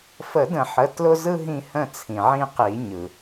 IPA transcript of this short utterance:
f ə˨˩˦ d ə̃˨˩˦ ħ ə˩˧˩ t l ʊ˦ z ɯ˦ ɦ ĩ˦˨ h ə̃˦˨ t͡sʰ ĩ˩ ʕ ĩ˦˨ q i˨˩˦ ɲ ɯ˩

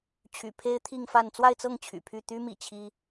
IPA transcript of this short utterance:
t͡ɕʰ y̰˨˩ pʰ e˥ ɪ̯ t̪ʰ i˥˧ ŋ f a˥˧ n t͡s w a˥˧ ɪ̯ t͡s ɤ˥˩ ŋ t͡ɕʰ y̰˨˩ pʰ y˥˩ t̪ y˥ m ḭ˨˩ t͡ɕʰ i˥

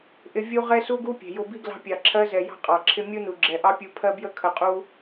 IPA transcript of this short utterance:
ʔ ɪ˧ vʲ u˦ ʁ ɛ˦ s u˦ ɡ u˦ pʲ ɛ̤˨ j ʊ˧ b i˦ ɡ l ɑ̤˧ pʲ ɑ˨ ǁʰ ɜ˧ z ɛ˨ j ɑ̤˦ qʼ ɑ˨ ǁʰ ɪ˦ mʲ u˦ n u˨ ɡ͡ǁ ɛ˨ ʔ ɑ˦ pʲ u˧ pʰ ɜ˦ b j ə˦ kʰ ə˧ qʼ u˦

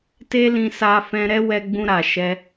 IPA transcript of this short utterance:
t e˦ l ĩ˧ s a˧ f ɛ̃˧ ɾ ɛ˦ w ɛ˧ ɡ͡b ũ˧ ɾ a˨ ʃ ɛ˧

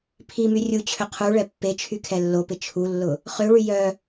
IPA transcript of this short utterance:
pʰ i m y rʲ u t͡ɕʰ ø qʰ u ɭ ɛ pː e t͡ʃʰ y kʰ ɛ lː o p ɪ t͡ʃʰ u lː ʊ | χ ø ɭ y j œ

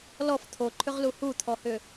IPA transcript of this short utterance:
l ɔ f t̪ʰ o ǃʰ ʏ ʁ l u h u t̪ʰ ɔ h ʏ

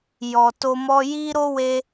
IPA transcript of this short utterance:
j ɔ˨ t o˧ m ɔ˧ j i˦ ɾ o˦ w e˧

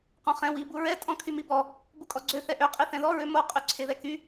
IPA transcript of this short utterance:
q ɔ̃ χ ɛ̃ w i b u ɹ ɛ tʼ ɔ̃ kʰ y m i b ɔ | b u kʼ ɔ ɡ͡ǀ ø θ ɛ ʔ ø qʼ i θ ɛ̃ ð ɔ ɹ ø m o qʼ y ǀʰ e ð ɛ k y

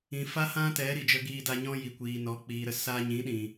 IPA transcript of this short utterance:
ĩ˨ f a˦ h ã˦ t ɛ˨˦ ɾ i˨ d͡ʒ ə˧ ɡ iː˧ d a˧ ɲ ɔ̃˦ j i˨ kʷ iː˨ n ɔ˨˦ k͡p iː˨ ɾ ə˦˨ s a˧ ɲ ĩ˨˦ ɗ ĩ˨

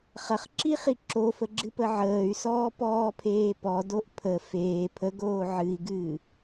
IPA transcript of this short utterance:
χ ɐ χ ǁ i χ i ǁ o f ə ɡ͡ǁ ɨ p ə ʕ əː y̯ s ɔː p ɔː pʰ eː p ɔ d o ʔ pʰ ə f eː pʰ ə ɡ oː ʕ ɨ i̯ ɡ ɨː

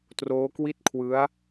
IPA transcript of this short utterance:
t r oː˦˥ k w i˥˩ t̚ kʰ w ɯ˦˥ a̯

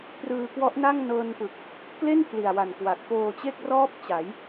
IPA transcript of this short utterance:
p r ɯː˧ k w ɔ˦˥ ʔ n a˥˩ ŋ n ɤː˧ n p ɯ˨˩ k̚ | k l e˥˩ n pʰ l i˨˩ a̯ w a˨˩ n k w a˨˩ k̚ p oː˧ t͡ɕ e˥˩ k̚ r ɔː˦˥ p̚ t͡ɕ a˩˦ j

